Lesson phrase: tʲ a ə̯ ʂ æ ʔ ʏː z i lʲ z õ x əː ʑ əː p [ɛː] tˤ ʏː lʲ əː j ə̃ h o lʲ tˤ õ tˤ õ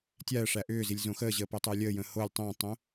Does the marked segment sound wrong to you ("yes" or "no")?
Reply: yes